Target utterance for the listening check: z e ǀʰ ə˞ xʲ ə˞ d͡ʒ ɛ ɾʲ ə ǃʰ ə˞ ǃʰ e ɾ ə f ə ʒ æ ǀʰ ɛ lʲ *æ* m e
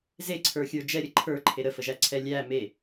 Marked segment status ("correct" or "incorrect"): correct